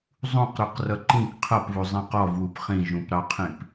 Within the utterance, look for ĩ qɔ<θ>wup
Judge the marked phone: incorrect: v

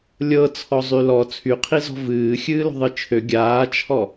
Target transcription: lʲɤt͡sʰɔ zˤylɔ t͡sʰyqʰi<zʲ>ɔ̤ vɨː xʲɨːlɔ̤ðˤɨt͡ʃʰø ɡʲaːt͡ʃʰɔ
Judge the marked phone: incorrect: z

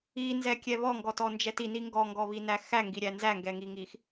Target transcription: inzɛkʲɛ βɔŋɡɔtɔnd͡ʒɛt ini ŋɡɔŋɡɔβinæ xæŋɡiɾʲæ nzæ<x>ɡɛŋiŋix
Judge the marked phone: incorrect: ŋ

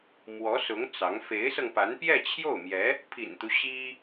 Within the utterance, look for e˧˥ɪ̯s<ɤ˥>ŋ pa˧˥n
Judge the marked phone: incorrect: ɤ˧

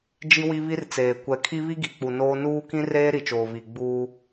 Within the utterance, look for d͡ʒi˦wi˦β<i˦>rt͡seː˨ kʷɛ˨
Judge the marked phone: correct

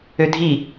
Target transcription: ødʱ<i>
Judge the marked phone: correct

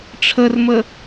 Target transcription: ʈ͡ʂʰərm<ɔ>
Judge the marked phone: incorrect: ə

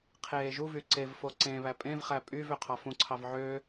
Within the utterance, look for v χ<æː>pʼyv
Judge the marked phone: incorrect: æ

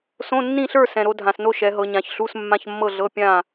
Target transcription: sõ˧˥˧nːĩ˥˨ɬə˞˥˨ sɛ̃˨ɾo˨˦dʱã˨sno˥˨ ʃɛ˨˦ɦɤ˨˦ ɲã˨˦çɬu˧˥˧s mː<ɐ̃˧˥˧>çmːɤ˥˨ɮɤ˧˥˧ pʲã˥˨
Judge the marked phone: incorrect: ã˧˥˧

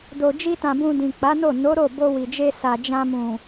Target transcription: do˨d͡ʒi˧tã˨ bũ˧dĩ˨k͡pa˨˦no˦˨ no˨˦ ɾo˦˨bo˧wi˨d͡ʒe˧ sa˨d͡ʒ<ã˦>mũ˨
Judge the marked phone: incorrect: ã˧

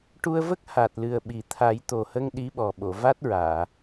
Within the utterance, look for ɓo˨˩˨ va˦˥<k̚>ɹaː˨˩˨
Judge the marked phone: incorrect: t̚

